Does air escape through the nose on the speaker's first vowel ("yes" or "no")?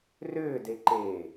no